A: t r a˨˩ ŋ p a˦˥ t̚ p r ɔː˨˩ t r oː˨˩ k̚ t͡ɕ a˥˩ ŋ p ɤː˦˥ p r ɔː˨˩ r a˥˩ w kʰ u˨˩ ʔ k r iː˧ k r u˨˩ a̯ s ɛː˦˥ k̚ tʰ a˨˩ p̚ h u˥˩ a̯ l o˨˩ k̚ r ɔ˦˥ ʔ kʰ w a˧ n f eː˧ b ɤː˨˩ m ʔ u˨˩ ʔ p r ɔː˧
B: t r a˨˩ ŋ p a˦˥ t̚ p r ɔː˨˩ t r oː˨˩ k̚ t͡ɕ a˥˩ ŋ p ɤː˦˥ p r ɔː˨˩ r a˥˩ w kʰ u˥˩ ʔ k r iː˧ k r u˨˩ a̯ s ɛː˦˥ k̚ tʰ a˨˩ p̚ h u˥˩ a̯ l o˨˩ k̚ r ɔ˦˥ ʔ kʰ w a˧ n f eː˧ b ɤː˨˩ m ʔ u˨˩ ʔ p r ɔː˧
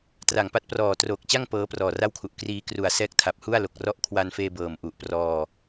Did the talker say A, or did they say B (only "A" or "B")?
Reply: A